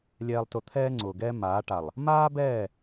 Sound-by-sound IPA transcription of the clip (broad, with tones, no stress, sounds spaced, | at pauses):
lʲ ɛː˨ lˠ t ʊ˨ t̪ʰ ɛː˦ ŋ͡ǀ ʊː˨ ɡ ɛː˦ m aː˨˦ ʈ a˨ lˠ | m aː˦ b ɛː˦˨